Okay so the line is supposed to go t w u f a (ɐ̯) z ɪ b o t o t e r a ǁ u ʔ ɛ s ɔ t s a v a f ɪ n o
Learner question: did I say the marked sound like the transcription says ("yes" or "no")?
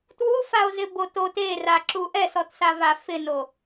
no